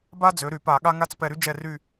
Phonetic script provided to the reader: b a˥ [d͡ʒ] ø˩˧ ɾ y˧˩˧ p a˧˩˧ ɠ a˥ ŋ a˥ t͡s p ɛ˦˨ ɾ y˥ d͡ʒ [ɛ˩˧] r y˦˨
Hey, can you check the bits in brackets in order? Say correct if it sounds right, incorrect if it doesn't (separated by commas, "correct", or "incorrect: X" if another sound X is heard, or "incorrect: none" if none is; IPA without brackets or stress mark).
incorrect: d͡z, incorrect: ɛ˦˨